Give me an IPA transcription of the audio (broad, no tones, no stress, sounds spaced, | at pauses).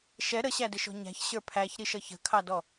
ʃ ɛ ɾ ə ɕ æ d ɪ ʃ ɔ̤ ɲ æ̤ ç ɕ ə˞ pʰ æ ç ɾ i ʃ ʌ ç ə̤ kʰ ɑ d ɔ